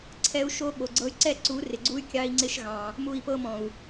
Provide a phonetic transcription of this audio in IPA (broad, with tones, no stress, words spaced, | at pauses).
ǀʰɛ˦u̯ʃo˦ɓo˨ɡ͡ǀɤ˦y̯ ǀɛ˦ǀu˨˦ rɪ˨ɡ͡ǀu˦y̯ kʲɑ˦i̯ŋ͡ǀɪ˦ʃɣɑ̃˨ | mu˦˨i̯pɤ˦mɔ̃˨u̯